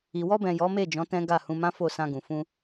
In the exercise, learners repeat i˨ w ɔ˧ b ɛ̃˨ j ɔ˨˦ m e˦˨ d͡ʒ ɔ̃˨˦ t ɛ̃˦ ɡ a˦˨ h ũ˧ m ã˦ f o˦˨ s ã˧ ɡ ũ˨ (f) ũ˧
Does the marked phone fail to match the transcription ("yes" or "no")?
no